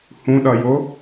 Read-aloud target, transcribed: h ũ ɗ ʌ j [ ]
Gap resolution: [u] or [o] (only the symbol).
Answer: o